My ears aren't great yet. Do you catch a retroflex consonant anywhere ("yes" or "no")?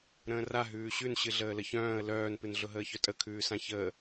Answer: no